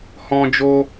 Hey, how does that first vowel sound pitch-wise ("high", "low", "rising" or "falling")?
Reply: high